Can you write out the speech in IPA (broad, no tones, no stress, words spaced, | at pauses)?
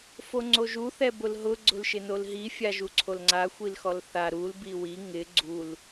foŋ͡ǀoʒu θɛbʊlɦʊ ɡ͡ǀʊlʃɪnolɦi fʲaʒuǀʰolŋ͡ǀa xʷilxɔlθa ɾul biwi ŋɪ ɡ͡ǀul